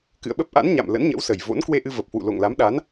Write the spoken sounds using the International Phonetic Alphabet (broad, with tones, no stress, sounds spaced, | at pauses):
k ɨ̰˧˨ ə̯ ɓ ə˦˥ p̚ ʔ a̰˧˥ n ɲ a̰˧˨ m l ə̰˧˥ n ɲ ə̰˧˥ w s ə˨˩ j v o̰˧˥ n k w e˧ ʔ ɨ˧ v ə˨˩ p̚ h w ṵ˧˨ l o̰˧˨ ŋ l a˨˦ m ɗ a˨˦ n